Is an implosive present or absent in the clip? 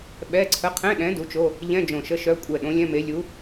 present